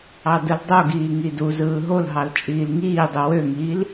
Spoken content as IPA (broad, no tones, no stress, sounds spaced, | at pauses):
ɑ d ɯ l dˤ o ɡ iː ŋ i d u z ɯː ɦ o l ɦ ɑ l t͡ʃʼ iː l ŋ iː dˤ u w ø ŋ iː l